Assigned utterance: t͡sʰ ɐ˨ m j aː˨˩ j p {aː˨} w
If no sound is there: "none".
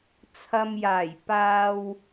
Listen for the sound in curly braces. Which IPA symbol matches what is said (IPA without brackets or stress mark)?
aː˨